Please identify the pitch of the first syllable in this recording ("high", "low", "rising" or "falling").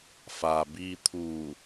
low